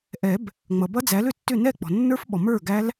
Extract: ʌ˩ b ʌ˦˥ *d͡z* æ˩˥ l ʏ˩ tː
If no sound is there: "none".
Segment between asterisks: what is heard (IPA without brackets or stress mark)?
d͡z